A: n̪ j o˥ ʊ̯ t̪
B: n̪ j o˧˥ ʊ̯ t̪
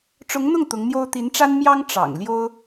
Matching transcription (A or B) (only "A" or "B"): A